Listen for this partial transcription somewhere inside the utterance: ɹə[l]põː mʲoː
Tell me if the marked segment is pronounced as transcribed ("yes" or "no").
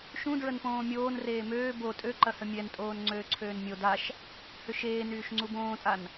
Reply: no